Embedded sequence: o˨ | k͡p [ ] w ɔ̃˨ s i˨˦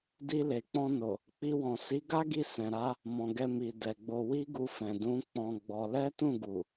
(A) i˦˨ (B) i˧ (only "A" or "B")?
B